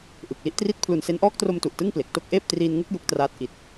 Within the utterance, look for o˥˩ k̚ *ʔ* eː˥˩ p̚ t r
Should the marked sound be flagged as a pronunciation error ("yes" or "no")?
no